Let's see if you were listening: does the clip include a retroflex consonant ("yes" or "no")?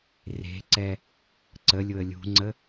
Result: no